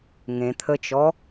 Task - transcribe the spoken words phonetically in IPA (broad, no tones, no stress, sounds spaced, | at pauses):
ŋ ẽ t̪ʰ ə t͡ʃ ɔ